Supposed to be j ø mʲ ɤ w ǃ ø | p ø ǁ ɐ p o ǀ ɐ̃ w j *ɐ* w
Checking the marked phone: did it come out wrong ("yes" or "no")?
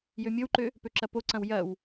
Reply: no